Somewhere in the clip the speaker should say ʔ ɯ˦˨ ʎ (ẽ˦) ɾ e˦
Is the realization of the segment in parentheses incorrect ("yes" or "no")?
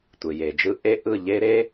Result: yes